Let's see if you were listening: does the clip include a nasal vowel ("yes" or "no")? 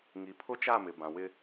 yes